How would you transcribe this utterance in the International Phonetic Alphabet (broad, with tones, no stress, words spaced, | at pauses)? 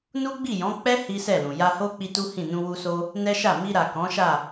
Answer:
nu˦ɡ͡bi˦˨jɔ̃˨˦ k͡pɛ˦ hi˦sɛ˦˨lũ˨ ja˧ho˦ k͡pi˦tu˦hĩ˦˨ nũ˧wu˧so˧ | nɛ˦ʃa˦˨ mi˧ɾa˨ kɔ̃˨˦ʃa˦˨